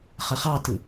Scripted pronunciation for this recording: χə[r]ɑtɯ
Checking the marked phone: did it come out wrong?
yes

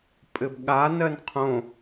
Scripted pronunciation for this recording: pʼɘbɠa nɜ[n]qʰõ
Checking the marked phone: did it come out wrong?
no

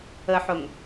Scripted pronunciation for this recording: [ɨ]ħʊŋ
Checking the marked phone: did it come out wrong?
yes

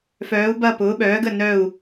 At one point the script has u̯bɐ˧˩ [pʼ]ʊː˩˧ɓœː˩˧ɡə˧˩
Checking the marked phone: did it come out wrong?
yes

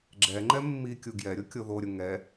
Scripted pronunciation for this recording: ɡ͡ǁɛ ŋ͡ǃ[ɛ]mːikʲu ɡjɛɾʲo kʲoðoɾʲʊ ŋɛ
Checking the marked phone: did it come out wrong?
no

